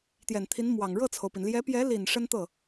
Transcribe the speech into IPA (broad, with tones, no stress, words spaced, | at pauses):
t̪jɛ˨˩nt̪ʰi˧˥nmwɑ˨˩ŋ ɻɤ˥˩t͡sʰo˩ʊ̯pi˩n ljɛ˧˥pjɛ˧˥li˨˩n ʂə˥nt̪ɤ˥˩